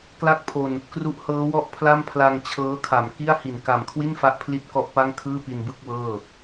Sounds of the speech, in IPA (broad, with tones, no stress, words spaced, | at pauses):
kla˥˩k̚pʰo˧n | kru˦˥ʔhɤː˦˥wɔ˥˩ʔpʰla˥˩m pʰla˧ŋt͡ɕʰɤː˦˥kʰa˩˦m ki˥˩a̯ hi˨˩n ka˨˩mkʰwi˥˩n fa˥˩ʔpʰli˥˩t̚kɔ˥˩ʔpa˥˩ŋ kʰɯː˥˩pi˧nbɯ˥˩k̚ wɤː˥˩